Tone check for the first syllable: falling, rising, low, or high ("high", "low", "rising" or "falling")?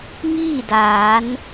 falling